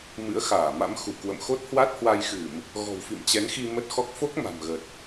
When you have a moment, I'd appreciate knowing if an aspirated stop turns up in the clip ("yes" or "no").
no